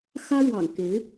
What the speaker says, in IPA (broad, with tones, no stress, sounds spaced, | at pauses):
x ä˥ ɻ w ɑ̰˨˩ ŋ k e˧˥ ɪ̯